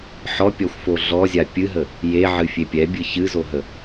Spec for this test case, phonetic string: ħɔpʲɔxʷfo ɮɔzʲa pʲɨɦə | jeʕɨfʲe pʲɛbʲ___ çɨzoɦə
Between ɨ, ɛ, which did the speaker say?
ɨ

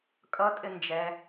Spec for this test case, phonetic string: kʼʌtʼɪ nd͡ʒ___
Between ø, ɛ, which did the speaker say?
ɛ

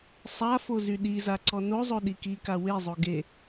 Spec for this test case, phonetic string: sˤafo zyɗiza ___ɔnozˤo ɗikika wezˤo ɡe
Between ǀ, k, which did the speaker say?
ǀ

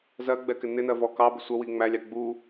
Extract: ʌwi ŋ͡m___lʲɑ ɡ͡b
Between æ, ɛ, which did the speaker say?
æ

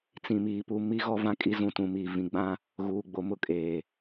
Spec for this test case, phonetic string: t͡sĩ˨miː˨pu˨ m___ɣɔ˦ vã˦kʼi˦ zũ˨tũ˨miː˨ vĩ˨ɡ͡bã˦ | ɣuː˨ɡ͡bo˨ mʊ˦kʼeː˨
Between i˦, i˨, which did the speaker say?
i˦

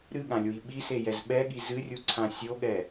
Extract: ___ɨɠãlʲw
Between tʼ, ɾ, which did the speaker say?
ɾ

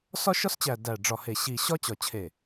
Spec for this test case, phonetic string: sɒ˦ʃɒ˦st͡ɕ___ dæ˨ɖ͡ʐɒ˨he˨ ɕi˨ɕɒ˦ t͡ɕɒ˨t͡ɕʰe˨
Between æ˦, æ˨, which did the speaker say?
æ˨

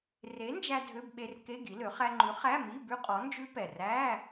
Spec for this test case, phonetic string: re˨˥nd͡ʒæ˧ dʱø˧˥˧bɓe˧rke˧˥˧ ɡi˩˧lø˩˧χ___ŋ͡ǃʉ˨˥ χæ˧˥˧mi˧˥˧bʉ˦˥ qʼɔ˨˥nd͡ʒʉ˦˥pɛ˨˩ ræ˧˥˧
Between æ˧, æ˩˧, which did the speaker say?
æ˧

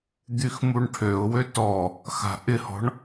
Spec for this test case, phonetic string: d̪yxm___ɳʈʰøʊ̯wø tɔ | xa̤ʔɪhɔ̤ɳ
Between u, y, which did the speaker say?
u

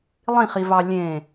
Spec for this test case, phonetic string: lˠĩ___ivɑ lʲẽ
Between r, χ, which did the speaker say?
χ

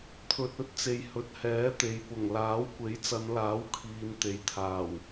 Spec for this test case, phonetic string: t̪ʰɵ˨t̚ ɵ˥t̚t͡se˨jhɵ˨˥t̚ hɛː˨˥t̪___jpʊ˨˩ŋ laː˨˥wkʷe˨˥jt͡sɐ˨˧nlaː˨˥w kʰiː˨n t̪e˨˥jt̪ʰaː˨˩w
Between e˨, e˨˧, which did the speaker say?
e˨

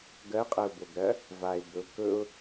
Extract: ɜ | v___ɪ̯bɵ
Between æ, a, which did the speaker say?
a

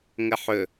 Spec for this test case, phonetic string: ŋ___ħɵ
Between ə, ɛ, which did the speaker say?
ə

